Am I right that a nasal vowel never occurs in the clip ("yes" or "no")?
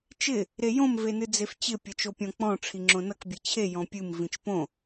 no